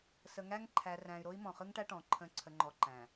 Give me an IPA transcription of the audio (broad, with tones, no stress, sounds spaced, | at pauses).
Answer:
s ə˨ ŋ æ˦ ŋ ǃʰ æ˨ r æ̃˨ y̯ ɾ o˦ i̯ m ɔ̃˨ χ ɯ˦ ŋ ʈ æ˦ ʈ ɔ̃˨ ǃʰ ə̃˦ ǀʰ ə˨ ŋ͡ǃ ɔ˨ ǃ æ̃˨